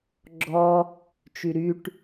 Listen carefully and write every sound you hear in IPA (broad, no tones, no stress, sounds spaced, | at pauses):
ɡ͡ǁ ɔ | t͡ʃ y ɾ y ʈ